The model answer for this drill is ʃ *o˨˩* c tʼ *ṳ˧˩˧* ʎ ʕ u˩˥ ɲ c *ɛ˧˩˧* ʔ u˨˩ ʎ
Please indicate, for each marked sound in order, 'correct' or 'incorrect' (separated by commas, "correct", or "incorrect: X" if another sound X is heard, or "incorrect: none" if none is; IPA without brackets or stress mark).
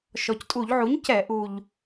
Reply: incorrect: ɔ˨˩, incorrect: u˧˩˧, correct